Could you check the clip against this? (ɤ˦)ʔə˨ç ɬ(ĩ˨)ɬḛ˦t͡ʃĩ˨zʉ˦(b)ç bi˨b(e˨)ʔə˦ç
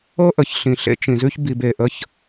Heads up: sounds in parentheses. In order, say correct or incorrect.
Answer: correct, correct, incorrect, correct

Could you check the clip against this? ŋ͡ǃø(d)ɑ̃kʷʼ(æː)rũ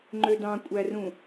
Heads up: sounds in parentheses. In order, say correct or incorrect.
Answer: correct, incorrect

